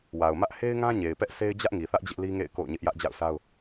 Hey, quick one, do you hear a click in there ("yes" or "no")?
no